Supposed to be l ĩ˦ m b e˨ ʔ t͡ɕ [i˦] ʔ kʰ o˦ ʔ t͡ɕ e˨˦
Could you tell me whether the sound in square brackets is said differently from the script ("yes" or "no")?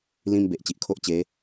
yes